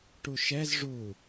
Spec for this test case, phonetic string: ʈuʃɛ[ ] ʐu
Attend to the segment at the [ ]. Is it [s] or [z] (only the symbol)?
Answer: z